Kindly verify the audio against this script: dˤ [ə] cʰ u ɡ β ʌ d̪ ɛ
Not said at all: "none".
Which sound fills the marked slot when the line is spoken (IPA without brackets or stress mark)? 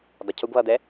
ə